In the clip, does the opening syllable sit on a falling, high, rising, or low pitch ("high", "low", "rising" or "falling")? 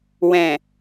low